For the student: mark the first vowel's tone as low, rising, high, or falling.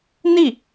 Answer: falling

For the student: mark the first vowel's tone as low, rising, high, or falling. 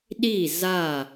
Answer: falling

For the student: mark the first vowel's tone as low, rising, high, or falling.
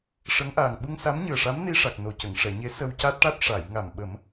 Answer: rising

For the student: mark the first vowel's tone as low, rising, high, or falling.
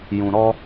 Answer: low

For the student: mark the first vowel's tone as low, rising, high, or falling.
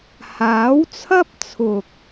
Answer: rising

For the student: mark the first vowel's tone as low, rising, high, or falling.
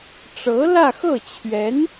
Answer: rising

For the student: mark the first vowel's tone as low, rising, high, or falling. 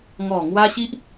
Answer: low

